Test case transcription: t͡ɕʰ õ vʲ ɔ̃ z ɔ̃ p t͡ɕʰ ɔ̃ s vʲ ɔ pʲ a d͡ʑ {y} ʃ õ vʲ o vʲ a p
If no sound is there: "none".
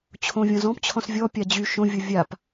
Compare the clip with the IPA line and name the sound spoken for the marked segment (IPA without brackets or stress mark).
y